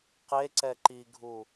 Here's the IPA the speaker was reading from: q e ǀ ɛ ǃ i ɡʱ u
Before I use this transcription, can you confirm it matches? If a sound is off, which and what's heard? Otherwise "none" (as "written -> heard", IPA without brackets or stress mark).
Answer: none